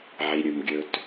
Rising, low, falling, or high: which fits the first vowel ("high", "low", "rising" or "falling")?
low